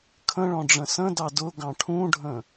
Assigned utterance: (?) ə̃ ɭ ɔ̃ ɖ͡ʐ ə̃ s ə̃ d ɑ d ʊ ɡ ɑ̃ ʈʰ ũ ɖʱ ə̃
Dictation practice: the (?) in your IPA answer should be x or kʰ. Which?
kʰ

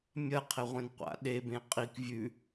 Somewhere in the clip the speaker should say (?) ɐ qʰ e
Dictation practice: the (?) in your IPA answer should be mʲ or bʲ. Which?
mʲ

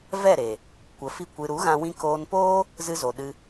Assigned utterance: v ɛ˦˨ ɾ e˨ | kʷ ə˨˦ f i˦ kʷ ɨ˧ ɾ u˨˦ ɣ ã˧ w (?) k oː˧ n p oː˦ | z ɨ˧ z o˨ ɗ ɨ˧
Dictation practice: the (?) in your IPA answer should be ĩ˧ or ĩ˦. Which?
ĩ˧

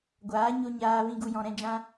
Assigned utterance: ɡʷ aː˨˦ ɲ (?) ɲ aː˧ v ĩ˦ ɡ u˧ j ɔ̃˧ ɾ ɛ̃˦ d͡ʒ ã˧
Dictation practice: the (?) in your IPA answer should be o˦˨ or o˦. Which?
o˦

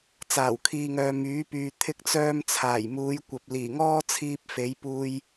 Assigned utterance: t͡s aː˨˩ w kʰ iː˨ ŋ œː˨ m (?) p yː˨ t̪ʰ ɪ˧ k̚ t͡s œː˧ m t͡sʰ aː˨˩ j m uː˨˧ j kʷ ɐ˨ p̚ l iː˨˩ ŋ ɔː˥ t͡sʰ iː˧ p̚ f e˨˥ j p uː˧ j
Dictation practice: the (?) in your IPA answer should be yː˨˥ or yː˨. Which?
yː˨˥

